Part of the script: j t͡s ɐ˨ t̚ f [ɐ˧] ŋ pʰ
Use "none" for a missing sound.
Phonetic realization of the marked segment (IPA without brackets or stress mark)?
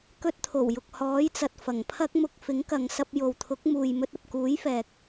ɐ˨˩